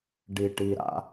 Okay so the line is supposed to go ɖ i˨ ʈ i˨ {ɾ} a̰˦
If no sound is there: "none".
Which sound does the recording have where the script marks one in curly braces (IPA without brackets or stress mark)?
ɾ